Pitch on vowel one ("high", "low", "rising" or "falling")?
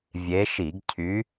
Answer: rising